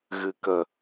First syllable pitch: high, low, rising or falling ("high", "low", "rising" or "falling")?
low